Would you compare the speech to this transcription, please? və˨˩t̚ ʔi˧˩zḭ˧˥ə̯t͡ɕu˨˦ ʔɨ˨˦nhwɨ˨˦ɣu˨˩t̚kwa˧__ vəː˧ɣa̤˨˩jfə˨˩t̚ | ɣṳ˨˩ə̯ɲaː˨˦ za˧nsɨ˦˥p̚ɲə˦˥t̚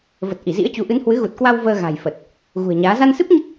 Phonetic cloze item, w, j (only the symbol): w